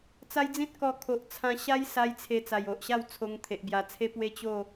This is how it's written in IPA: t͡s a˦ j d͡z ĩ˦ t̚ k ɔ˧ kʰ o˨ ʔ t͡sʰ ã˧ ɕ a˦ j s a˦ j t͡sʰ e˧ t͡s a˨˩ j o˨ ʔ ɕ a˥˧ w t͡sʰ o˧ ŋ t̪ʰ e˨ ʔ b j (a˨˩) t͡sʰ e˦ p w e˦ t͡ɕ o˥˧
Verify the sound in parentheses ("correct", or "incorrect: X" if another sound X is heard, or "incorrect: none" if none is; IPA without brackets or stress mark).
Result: correct